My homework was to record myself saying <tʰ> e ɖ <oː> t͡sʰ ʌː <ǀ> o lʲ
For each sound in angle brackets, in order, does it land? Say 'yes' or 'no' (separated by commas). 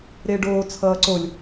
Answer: no, yes, yes